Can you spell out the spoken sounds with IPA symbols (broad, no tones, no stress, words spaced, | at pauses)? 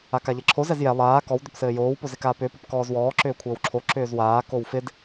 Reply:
akaʎɛǁʰo zɛzjɛ lˠaː kɔw dʏpsɘːjoːw pozɪkaːpʏːp əpkɔːzwɔː ǁʏːkʷʰɘːwǁʰo ǁʏːzwaː kowfɪd